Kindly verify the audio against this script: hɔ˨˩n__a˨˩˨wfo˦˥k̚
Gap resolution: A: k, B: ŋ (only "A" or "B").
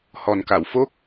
A